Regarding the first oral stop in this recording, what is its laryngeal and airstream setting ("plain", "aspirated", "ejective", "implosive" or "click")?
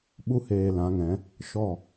implosive